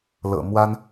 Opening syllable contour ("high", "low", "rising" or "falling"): low